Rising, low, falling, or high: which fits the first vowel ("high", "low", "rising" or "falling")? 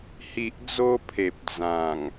low